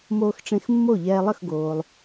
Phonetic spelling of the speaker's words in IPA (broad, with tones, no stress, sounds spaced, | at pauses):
m oː˧ x ʈ͡ʂ ẽ˧ x mː o˥˩ ʎ ɛː˧ lˠ ə˥˩ x ɡ oː˩ lˠ